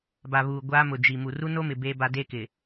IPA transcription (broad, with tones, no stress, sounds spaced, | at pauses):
b a˨ β uː˨ ɡʷ aː˦ m ʊ˨ d͡ʒ i˨ m u˨ r u˦ n o˦ m ɪ˨ b eː˦ b a˦ d e˦ k ɪ˨